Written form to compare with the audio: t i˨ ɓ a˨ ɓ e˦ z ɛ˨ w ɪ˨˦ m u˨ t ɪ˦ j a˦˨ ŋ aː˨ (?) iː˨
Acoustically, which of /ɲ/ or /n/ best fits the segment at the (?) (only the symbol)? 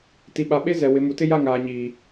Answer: ɲ